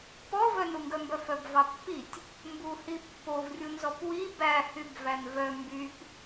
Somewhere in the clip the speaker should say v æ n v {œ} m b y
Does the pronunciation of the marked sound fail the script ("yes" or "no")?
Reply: no